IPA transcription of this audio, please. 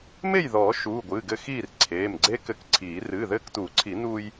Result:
m e˥˨ j ð ɔː˨˩˦ ʃ uː˩˧˩ ɡʷ ɨː˩˧˩ ɡ ɘ˥˨ x iː˥˨ r ǀʰ eː˩˧˩ m ɡ͡ǀ e˥ k ɘ˧ k ǀʰ iː˨˩˦ r ɨː˩˧˩ ð ɘː˥˨ k t uː˨˩˦ ǀʰ i˨˩˦ n uː˥ j

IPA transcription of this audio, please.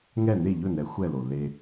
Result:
ŋ ɛ˥˩ n e˥˩ ʎ ɵ˥˩ n ɛ˩˥ xʷ ɛ˥˩ l o˩ ð e˧

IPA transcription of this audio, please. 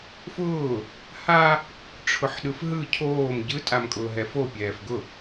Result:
f ʊː | h a | ʈ͡ʂʰ ʊ ħ ɗ ɯ f ɦ ɯ cʰ oː m ɟ ɯ tʼ a m kʼ ʊː ɦ ɛ f o pʲ ɛː f ɡ ʊ

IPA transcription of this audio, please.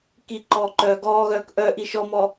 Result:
k i ǃ ɔː ǃ œː ɡ ɔː ɣ œː k ʔ œ ʔ i ʃ ɔ m ɔ

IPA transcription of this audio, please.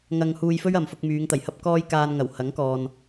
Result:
ŋ ɐ˧ ŋ h uː˧ j f ɵ˥ ɥ ɐ˨ m f ʊ˧ k̚ m yː˨˧ ŋ t̪ ɐ˨˩ j h ɐ˥ p̚ k ɔː˥ j k aː˧ n ŋ ɐ˨˩ w h ɐ˨˥ ŋ k ɔː˨ n

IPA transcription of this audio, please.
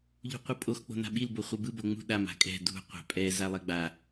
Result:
ʎ ṳ qʷ ɯ pʼ o x k͡p o̤ n a̤ ɓ i l b o χʷ ɯ b ɯ b o ŋ͡m ṳ ɗ a m a̤ kʼ ɛ̤ d ṳ qʷ a̤ pʼ ɛ z a lˠ ɛ ɡ͡b a

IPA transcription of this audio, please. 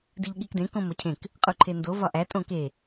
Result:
d i ʎ ɠ i k d ẽ k õ m o cʰ ẽ k | qʼ u ǃʰ e n d o v ɒ ʔ æ tʼ õ k e

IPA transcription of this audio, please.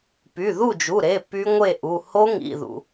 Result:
p y˩˧˩ ð u˥˨ d͡ʒ u˩˧˩ ɾ e˩˧˩ p y˦˥ ŋʷ e˥˨ ʔ u˩˧˩ h o˦˥ ŋ ḭ˩˧˩ ð ṵ˩

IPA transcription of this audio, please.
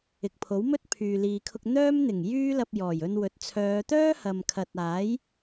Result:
ɪ˨ k̚ pʰ o˨˥ w m ɵ˥ t̚ pʰ yː˨ l iː˨ kʰ ʊ˧ k̚ n̪ œː˥ m n̪ ɪ˨˩ ŋ j yː˥ l ɐ˧ p̚ j ɔː˨˩ j ɵ˧ n w ɵ˨˥ t̚ t͡sʰ œː˨˧ t̪ œː˥ h ɐ˨ m kʰ ɐ˨ t̚ aː˨˥ j

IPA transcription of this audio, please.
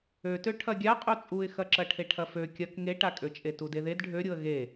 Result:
ø t ø ʈʰ ɐ ɡʲ a qʼ u t͡sʼ u ɪ̯ x ɐ ǁ ɐ ʈʰ e ʈʰ ɐ f ø kʲ ɐ k ŋ e ʈ a kʼ ø t͡ʃʼ e t u d e ð e d ɖʱ ø ɾʲ u ə̯ ɣ e

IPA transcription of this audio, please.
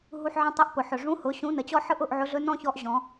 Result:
ɦ u˧ ħ ʕ ə̃˧˥ tˤ ʊ˧˥ ʔ p ʊ˩ ħ ɵ˩ ʐ ũ˧˥ h ʊ˩˧ ɕ ũ˧˥ n ə˩˧ t͡ɕ ɔ˥ ħ ɯ˥ ʔ ʊ˩˧ ʔ ʕ ɵ˧˥ ɮ ɵ˧˥ n ɔ̃˥ ç ɔ˧ ʔ ʑ ɔ̃˩˧

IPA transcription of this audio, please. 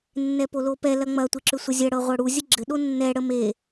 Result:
nː ɛ p o l o p ɛ l ɐ ŋ͡m ɐ tʷ e ǁ ʏ sʷ ɐ zʲ ɐ ɽ ɤ ʁʷ ɤ ɽ u zʲ ə ɡ͡ǁ ɘ ɗ o nː ɛ ɽ ə m e

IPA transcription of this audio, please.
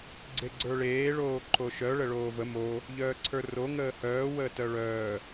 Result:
ɡ͡ǀ e ɡ͡ǀ ə˞ ɭ eː ɭ oː ǃ o ʃ œ ɭ ə ɭ oː v ə m o | ʎ œː ǀʰ ə˞ r o ŋ əː h œː w əː t œ ɭ œː

